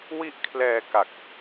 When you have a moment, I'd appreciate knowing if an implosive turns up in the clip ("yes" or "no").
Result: no